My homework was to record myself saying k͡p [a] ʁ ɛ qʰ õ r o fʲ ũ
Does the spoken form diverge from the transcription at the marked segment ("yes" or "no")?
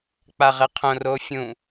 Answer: no